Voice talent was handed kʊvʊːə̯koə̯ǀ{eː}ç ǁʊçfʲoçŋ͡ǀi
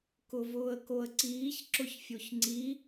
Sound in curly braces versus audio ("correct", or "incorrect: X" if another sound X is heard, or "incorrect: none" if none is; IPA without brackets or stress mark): incorrect: iː